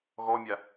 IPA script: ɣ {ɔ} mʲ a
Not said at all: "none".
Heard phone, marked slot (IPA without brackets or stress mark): ɔ